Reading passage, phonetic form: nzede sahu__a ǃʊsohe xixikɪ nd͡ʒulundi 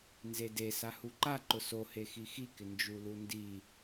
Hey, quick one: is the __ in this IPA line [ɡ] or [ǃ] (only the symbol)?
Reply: ǃ